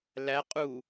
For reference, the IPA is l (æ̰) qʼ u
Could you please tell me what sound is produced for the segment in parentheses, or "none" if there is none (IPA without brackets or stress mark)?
æ